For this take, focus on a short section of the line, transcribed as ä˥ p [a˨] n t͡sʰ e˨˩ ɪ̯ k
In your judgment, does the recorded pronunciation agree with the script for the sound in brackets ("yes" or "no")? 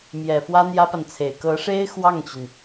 yes